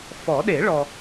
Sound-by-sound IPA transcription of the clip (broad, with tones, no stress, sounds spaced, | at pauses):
f ɔ˨˩˦ ɗ e˨˩˦ ɭ ɔ˨